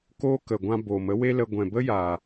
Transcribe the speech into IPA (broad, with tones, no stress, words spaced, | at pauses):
koː˦kə˨ɡʷã˧ bo˨mə˨˦we˦lə˧ ɡʷɛ̃˨bə˦jaː˨